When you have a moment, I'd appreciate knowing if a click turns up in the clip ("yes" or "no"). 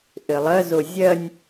no